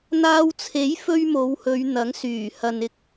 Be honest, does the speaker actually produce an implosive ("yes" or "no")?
no